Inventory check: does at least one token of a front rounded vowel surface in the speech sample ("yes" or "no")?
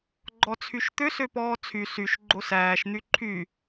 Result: yes